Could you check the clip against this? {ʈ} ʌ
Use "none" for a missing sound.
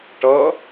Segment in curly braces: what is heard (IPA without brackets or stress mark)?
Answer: ʈ